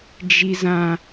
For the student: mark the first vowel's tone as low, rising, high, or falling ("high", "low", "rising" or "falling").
high